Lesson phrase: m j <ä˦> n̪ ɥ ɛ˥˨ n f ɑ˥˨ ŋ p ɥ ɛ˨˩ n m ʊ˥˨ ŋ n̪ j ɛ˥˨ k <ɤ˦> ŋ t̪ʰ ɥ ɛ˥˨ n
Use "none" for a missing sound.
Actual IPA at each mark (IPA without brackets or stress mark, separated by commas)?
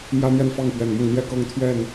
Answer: ä˦, ɤ˦